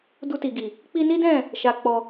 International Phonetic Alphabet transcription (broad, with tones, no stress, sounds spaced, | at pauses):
d u˧ t i˨ ɡ i˨ | k͡p i˧ n i˦ d ɛ̃˦˨ | ʃ a˧ k͡p ɔ˧